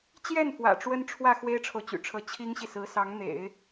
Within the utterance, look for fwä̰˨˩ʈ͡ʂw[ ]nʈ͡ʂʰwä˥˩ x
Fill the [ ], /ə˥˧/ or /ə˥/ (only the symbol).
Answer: ə˥